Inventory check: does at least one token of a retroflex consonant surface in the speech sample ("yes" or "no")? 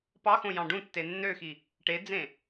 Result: yes